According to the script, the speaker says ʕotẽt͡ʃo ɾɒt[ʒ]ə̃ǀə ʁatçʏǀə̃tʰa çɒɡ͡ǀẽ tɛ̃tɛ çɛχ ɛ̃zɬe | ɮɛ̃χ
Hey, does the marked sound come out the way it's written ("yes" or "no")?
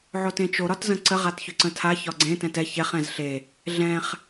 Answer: no